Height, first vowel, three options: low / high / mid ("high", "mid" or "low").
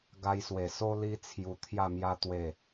low